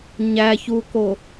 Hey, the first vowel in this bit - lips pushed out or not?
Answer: no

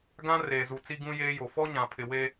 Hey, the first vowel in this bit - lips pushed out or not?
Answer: no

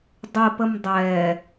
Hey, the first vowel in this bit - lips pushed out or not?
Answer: no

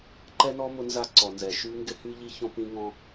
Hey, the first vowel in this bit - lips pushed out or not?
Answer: no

